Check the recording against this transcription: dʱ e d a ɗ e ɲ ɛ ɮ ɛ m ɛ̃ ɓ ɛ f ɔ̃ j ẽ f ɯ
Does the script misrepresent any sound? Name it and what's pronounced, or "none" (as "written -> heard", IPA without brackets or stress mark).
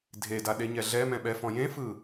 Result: none